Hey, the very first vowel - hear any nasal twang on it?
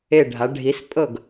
no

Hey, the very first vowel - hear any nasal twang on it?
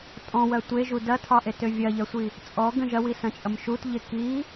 yes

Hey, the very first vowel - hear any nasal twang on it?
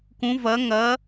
yes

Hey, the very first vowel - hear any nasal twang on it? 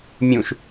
yes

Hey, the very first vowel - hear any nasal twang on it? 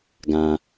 yes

